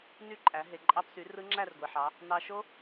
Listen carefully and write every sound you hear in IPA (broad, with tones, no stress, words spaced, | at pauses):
ny˦˥ǃʼæ˩˧ ɦe˩ǃʼɑ˧psy˩˧ rɯ˦˥ŋ͡ǁæ˥˧rɡʷi˩ħɑ˩˧ | nɑ˧ ʃo˦˥